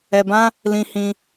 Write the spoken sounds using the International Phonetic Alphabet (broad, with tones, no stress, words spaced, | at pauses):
ɛ˧bã˦ | lĩ˧hĩ˧